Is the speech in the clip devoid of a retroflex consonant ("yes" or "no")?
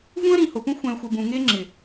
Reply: yes